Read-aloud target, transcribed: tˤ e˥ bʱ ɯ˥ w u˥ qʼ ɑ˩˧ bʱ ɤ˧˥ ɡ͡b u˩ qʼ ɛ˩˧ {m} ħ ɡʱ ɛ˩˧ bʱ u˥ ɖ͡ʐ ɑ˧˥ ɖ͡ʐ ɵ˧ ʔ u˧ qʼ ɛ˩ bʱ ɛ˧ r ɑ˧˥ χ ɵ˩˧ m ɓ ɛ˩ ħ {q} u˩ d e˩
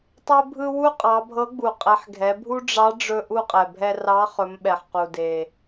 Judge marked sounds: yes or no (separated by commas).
no, yes